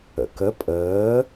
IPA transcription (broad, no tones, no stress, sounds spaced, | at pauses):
ə̰ k ə pʼ əː